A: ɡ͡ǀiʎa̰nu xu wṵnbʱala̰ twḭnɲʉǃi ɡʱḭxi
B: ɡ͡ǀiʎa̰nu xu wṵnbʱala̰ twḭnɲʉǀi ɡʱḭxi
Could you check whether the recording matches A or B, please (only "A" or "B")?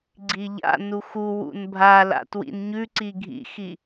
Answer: B